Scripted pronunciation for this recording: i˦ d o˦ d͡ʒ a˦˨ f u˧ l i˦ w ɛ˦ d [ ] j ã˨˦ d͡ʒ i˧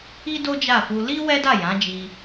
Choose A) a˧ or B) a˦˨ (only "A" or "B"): B